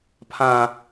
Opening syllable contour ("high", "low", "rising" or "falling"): low